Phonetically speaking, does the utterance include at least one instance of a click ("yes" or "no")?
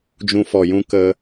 no